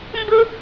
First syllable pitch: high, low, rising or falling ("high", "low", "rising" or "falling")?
high